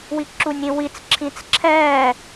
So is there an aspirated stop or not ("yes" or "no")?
yes